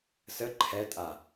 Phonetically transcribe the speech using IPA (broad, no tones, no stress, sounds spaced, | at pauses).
s ə ǃʰ ɛ tʼ a